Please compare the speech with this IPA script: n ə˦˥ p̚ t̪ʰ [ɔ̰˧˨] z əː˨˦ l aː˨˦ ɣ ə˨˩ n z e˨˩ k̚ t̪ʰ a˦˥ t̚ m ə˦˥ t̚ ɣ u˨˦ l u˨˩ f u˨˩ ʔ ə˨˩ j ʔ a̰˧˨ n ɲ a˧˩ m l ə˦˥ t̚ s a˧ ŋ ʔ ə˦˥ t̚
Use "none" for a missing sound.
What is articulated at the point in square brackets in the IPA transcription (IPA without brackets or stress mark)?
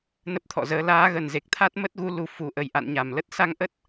ɔ̰˧˨